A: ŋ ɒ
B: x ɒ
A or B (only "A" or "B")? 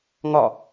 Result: A